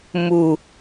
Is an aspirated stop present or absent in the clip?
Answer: absent